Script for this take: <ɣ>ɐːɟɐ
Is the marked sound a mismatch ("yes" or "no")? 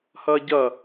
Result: yes